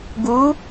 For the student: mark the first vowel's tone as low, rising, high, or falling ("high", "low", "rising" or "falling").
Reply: rising